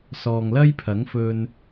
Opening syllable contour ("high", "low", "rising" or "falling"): low